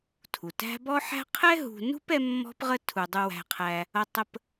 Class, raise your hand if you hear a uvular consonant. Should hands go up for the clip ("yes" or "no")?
yes